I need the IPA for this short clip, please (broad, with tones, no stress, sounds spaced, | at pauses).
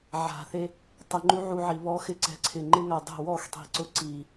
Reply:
ʕ a̤˨ θ e˧ | tˤ ɪ˧ ŋ͡ǃ u˦ ʕ u˧ ʕ i˨ β ɔ˦ x ɪ˦ ǀ ɛ̤˧ ǀʰ ɪ˨ ŋ͡ǃ ɪ˦ ŋ a˨ dˤ ɛ̤˦˨ w ɔ˦˨ x tˤ i̤˨ ǀ ʊ˨ ǀ i˨